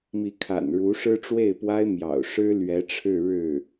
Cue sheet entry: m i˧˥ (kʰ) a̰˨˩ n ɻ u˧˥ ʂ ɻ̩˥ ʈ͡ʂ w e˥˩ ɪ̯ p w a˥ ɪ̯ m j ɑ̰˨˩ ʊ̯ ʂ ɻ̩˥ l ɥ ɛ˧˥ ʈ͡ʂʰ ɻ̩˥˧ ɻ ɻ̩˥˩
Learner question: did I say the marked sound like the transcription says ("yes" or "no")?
yes